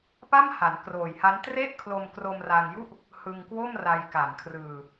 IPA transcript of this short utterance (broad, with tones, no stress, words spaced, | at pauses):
pa˥˩mha˩˦nkroː˨˩jha˦˥n tre˥˩ʔkʰlo˧mkro˧m ra˧ŋju˥˩ʔ | hɯ˧ŋkwo˥˩m ra˧jka˨˩n kʰrɯː˧